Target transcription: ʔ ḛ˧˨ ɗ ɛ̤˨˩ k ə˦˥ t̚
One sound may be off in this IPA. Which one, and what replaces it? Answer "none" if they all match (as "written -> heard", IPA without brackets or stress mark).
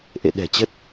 k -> t͡ɕ